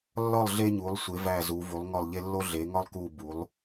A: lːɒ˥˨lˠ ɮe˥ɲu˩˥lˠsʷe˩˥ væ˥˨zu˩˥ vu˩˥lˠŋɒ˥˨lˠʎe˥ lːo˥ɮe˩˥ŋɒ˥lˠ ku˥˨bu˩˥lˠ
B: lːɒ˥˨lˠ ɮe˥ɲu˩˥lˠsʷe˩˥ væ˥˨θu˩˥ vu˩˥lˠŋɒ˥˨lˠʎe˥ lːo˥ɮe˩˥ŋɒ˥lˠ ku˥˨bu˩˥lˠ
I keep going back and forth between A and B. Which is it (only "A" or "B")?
A